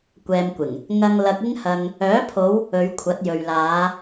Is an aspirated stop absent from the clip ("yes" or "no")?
no